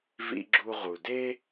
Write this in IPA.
v ḭ˦ ɡ͡ǁ u˦ ʁ u˨ d e˦

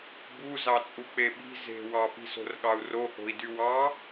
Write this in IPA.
b u z ɑ t͡sʼ u k͡p e ɓ i̤ z e̤ w ɑ p i̤ s o̤ r ɠ ɑ u̯ r o h o̤ i̯ d y w ɑ

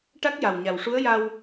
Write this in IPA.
ʈ a˦˥ k̚ j a˨˩ w ɲ a˨˩ w ʂ u˧˥ ə̯ j a˧ w

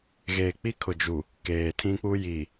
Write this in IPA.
ɣ eː˨ k͡p i˦ kʰ ʊ˨ d͡ʒ u˨ | k eː˨ tʰ ĩ˦ k͡p u˦ j i˨

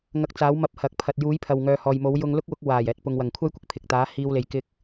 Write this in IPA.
ŋ ɐ˧ k̚ t͡s aː˨˥ w m ɐ˧ p̚ h ɐ˨ k̚ pʰ ɐ˨ t̚ j uː˨˥ j pʰ ɐ˨ w ŋ œː˨ h ɔː˨ j m o˨˥ w j ʊ˧ ŋ l ʊ˥ k̚ w ʊ˨˥ k̚ w aː˨˩ j ɛː˨ t̚ p ʊ˨ ŋ w ɐ˨˩ ŋ kʷʰ ɐ˥ j kʷ ɪ˨ k̚ pʰ ɪ˨ k̚ t̪ aː˨˥ h iː˧ w l e˨ j k ɪ˧ k̚

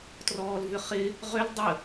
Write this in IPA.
t r ɔː l v ʏ χ ɪ | ʁ ʏ l dˤ ə

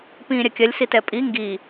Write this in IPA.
p ĩː ɾʲ ɐ kʲ ɐ lʲ s i t ɛ pʼ i ŋ ɡ i

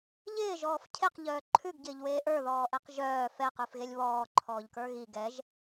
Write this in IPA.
ʎ ɪː ʒ ɔː f cʰ e q ʎ œː ǃʰ ʉ ɡ ɟ ɪː ʎ w eː ʔ ə˞ ð ɔː ʔ ɛ q ʒ œː f ɛ q ʉ f ɣ e lʲ β ɔː ǃʰ ɔː ʎ k ə˞ ɣ i ɡ ɛ ʒ

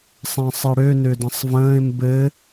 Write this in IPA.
sˤ ɛ̃ sˤ ɘ ɽ ø n ø d ɐ̃ sˤ v ə̃ː ɪ̯ m b ɘ

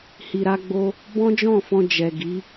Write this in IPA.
h i˨ ɾ a˧ ɡ͡b o˧ | b ɔ̃˦ d͡ʒ ɔ̃˦˨ f ɔ̃˧ d͡ʒ ɛ˨ ɡ i˨˦

